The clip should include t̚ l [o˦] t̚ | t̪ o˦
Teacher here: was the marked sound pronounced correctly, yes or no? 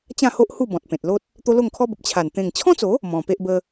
yes